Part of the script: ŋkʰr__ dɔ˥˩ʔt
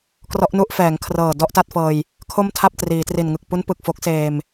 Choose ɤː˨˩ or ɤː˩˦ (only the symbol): ɤː˨˩